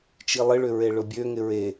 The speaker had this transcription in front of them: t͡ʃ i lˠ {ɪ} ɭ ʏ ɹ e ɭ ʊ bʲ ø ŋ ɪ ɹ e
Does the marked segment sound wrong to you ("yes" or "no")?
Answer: no